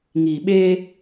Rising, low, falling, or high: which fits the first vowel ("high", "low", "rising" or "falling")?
low